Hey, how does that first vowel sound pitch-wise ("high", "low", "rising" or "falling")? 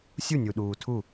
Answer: falling